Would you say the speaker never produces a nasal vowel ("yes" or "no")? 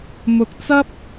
yes